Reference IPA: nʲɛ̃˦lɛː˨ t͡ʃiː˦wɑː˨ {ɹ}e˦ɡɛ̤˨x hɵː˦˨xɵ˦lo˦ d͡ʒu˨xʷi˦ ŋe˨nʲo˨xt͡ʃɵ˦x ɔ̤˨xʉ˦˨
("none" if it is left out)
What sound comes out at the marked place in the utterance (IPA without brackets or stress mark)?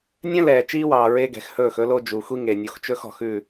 ɹ